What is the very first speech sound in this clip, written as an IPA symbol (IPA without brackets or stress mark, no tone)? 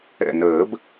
ɛ̰